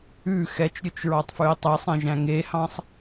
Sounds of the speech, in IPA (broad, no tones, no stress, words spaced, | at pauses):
ʉ xɛt͡ʃɾʲɵt͡ʃɹɑtˤfʉi̯ tˤesˤɛ̃ʒæ̃ ŋehɑ̃sˤ